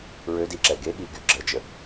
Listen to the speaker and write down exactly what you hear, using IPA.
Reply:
ɹ ø d i ǁ ɛ ɡ e ɠ i ɡ y ɡ͡ǁ ə d͡ʒ ə

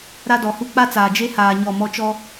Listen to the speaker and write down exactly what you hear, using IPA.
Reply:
ɾ a˦ d ɔ˨ h u˦ k͡p a˦ t͡s aː˨ d͡ʒ e˦ h aː˨ ɲ ɔ˦˨ m ɔ˦ t͡ʃ ɔ˦

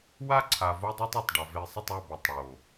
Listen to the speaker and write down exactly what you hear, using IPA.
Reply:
w a˦ ǀʰ a˨ v o˦ dˤ o˦ tˤ ɛ˨ tˤ ɖ a˨ v e˨ sˤ ə˦˨ tˤ a˦˨ b o˨ tˤ ɽ o˨

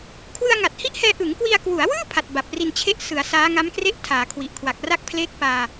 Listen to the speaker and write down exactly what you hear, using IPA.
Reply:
kʰ w ɯ˧ a̯ ŋ a˨˩ t̚ h i˦˥ ʔ h ɛː˧ ʔ ɯ˩˦ ŋ k w i˧ a̯ k w u˩˦ a̯ w ɯː˥˩ pʰ a˨˩ t̚ b a˨˩ p̚ r i˧ n t͡ɕʰ e˥˩ ʔ s ɯ˩˦ a̯ s aː˦˥ ŋ a˦˥ m k r e˥˩ ʔ tʰ aː˩˦ kʰ w i˨˩ ʔ kʰ w a˨˩ k̚ r a˦˥ k̚ pʰ l eː˦˥ k̚ p aː˧

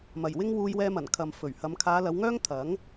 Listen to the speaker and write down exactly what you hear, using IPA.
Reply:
m ɐ˨˩ j w ɪ˥ ŋ w uː˧ j w ɛː˧ m ɐ˨˩ n kʰ ɐ˨ m f ɵ˨˩ ɥ h ɐ˨˧ m kʰ aː˨˧ l ɐ˨˧ w ŋ œː˥ ŋ t̪ʰ ɐ˨˥ ŋ

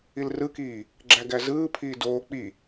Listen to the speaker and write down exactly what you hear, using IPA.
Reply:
i l r ɯ k iː | ɡ͡ǁ æ ɡ æ z ɯː pʰ iː d oː k͡p i

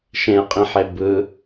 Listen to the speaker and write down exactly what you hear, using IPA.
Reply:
ʃ ẽ ə̯ qʼ ĩ ħ e b ɯ

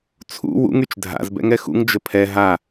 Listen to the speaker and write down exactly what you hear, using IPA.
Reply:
t͡sʰ ṵ w ṵ ŋ y t͡ʃ dʱ a̰ z b ɛ̰ ŋ ɛ x ṵ ŋ d͡ʒ ə pʰ ɛ ɦ a

